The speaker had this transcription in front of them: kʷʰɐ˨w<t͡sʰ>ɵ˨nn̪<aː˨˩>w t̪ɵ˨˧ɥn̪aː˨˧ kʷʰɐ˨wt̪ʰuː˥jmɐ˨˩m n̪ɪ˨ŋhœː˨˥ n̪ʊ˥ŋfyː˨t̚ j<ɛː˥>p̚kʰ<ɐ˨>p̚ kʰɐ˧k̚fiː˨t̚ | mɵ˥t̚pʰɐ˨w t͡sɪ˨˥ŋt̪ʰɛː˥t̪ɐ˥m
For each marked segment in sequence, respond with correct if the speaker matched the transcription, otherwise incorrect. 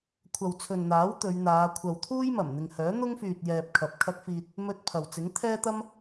correct, incorrect: aː˨˥, incorrect: ɛː˨, correct

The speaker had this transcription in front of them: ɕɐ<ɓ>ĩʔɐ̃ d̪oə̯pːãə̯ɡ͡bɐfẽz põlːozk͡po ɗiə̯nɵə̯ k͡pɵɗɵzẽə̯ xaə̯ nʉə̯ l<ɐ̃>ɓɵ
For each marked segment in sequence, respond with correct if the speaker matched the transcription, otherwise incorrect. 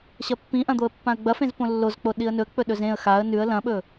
incorrect: pː, correct

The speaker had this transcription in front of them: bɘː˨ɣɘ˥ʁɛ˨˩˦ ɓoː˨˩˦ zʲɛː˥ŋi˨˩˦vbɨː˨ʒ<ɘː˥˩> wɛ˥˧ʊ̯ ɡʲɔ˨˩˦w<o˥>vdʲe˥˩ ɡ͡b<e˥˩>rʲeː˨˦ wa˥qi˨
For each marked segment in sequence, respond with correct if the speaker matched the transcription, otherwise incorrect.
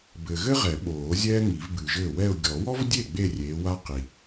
correct, incorrect: ɔ˥, incorrect: e˥˧

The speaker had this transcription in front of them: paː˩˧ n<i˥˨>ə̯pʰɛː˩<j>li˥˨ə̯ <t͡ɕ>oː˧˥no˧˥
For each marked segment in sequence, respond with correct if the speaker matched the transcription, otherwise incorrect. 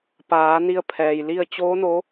incorrect: i˧, correct, correct

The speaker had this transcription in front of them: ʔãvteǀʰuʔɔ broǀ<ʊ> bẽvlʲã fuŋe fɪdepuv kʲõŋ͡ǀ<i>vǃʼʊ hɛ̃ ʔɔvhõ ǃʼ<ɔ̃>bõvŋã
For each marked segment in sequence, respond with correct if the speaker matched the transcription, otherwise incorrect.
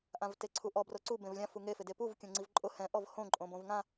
incorrect: u, correct, incorrect: õ

